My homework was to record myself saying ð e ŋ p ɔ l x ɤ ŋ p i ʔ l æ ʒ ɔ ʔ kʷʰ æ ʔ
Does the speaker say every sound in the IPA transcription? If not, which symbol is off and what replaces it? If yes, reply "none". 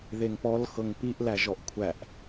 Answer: none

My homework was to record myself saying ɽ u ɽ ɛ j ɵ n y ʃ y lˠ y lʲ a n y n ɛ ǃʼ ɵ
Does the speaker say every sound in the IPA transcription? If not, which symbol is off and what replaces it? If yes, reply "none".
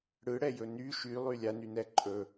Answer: u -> ɯ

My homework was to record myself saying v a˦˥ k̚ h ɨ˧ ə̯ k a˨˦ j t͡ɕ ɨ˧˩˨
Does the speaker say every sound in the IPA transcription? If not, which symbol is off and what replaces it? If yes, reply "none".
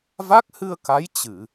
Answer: none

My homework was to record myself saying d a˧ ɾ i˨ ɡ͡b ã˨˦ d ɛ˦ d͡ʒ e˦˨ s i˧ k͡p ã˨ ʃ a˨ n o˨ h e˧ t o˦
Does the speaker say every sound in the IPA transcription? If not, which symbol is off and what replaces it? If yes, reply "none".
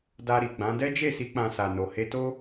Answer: ʃ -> s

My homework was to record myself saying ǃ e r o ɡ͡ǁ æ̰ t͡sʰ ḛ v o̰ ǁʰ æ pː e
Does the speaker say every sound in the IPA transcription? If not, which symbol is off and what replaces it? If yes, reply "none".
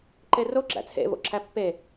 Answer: none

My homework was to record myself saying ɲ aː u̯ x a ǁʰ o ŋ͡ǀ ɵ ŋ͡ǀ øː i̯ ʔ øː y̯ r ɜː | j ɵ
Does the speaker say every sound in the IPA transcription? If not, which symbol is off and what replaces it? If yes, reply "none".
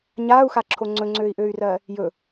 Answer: none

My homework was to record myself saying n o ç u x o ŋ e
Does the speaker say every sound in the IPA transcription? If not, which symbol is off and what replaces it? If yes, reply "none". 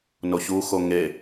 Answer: none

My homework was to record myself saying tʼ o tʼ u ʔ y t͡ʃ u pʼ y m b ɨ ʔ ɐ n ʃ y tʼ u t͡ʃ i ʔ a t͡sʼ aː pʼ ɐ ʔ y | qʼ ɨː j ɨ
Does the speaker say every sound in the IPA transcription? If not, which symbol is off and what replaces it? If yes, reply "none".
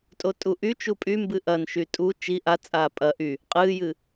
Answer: none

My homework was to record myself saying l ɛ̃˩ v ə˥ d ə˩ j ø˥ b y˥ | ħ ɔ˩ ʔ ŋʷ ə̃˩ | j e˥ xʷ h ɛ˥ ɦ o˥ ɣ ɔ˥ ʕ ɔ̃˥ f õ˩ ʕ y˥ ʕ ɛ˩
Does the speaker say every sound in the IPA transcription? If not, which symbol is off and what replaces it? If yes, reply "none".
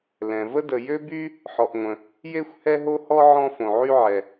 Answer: ɣ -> h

